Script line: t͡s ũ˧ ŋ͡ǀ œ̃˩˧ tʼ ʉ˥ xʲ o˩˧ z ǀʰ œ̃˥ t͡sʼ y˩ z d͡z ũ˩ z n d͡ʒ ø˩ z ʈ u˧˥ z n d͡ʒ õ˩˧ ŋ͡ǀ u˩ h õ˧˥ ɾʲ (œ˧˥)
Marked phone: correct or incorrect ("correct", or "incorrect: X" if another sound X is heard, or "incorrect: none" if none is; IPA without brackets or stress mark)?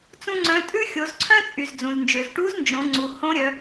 incorrect: œ˩˧